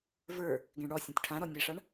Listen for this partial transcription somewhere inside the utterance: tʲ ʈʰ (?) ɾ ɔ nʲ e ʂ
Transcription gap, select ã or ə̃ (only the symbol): ã